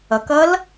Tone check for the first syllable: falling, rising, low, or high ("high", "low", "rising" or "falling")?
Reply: low